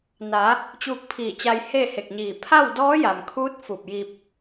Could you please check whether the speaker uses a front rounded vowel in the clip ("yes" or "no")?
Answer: no